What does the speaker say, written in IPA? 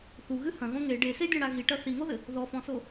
θ u ɣ ɨ h ɐ̃ ɣ õ ŋ e ɖ e s e dʲ ɔ̃ ɽ a ɣ i ʈ ɐ θ i ŋ o ð ɘ | ð ɔ f ɔ̃ s o

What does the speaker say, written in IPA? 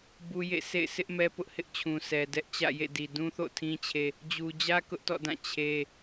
b u˦ j ḛ˦˨ s ḛ˦˨ ɪ̯ sʰ ɪ˦ ʔ m ɛ˦ p ʊ˦ ʔ h ɪ˦ ʔ t͡ɕʰ ũ˨ s ɛ˨ d ɛ˦ ʔ t͡ɕ ä̰˦˨ j ḛ˦˨ d i˨ d ũ˦ θ o̰˦˨ tʰ ĩ˦ t͡ɕʰ e˦ | d͡ʑ u˨ d͡ʑ ä˦ k ʊ˦ ʔ t ɔ̰˦˨ d ã˦˨ t͡ɕʰ e˦

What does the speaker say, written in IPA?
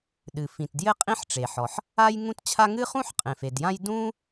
ɗ ɨ˩ f ĩ˩ t d j ɘ˥ qʼ ĩ˥ ħ ʈ͡ʂ e˩ ħ ɔ˩ ħ | a˥ j ŋ ũ˥ t t͡ɕʰ a˥ ŋ ɨ˥ χ ũ˥ ħ qʼ ẽ˩ f e˩ d j ã˥ j d ũ˥

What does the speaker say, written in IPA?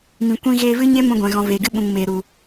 m ĩ˨ kʷ ĩ˧ ɣ eː˧ v ɨ˦ ɲ e˦ m ũ˧ ɡʷ ɛ̃˨ ɣ ɔ̃˨ v eː˨ ɡ ɨ˦ ɓ ũ˨ ŋ m eː˨ ɾ u˨

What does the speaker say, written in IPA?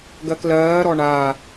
ɡ ɜ k l ɜː ɾ ɔ ɳ a

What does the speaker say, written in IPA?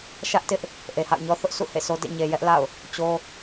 ʃ ä˦ ʔ t ɪ˦ ʔ | ʔ e˨ h a̰˦˨ ʊ̯ ɲ ɔ˦ θ ʊ˦ ʔ s ṵ˦˨ h ḛ˦˨ s o˦ d ḛ˦˨ ɲ e˨ j ɛ˦ ʔ l a̰˦˨ ʊ̯ | t͡ɕ o˦

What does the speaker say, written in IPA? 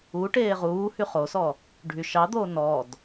u ʈ eː ʁ uː h y χ o s ɔ | ɖʱ y ʃ ɑ d̪ oː n ɔ d

